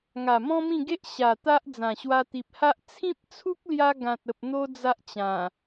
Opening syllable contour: low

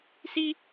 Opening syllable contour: high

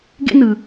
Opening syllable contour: high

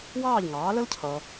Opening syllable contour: falling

